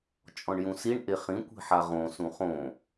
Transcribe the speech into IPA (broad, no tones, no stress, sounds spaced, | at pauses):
t͡ʃʼ ɔ̃ ɳ j ũ s i ɳ ʔ e χ ĩ kʷ i̤ ħ a ʁ õ s ũ χ õ